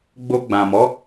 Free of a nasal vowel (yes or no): no